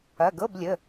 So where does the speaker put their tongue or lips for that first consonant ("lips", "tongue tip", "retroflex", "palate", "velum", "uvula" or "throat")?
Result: velum